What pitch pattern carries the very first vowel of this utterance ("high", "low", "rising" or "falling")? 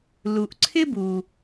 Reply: low